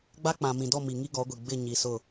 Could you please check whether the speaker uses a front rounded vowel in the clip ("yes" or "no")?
no